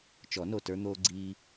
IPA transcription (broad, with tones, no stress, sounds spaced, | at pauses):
t͡ʃ ɔ˨˩˦ n o˧˩ t ə˞˧ n̪ oː˧ ɡ͡ǀ iː˧